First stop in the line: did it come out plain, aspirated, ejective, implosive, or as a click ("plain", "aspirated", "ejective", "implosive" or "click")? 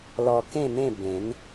plain